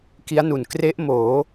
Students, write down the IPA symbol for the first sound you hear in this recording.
k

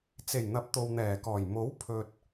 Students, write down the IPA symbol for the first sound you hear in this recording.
t͡s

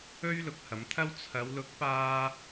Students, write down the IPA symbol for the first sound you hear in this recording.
ɵ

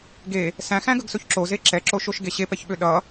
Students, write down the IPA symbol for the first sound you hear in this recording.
ɡ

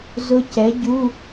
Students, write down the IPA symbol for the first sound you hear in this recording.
z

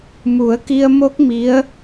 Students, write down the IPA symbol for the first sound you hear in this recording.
m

